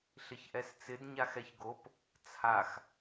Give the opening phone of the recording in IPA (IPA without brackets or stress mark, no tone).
ɬ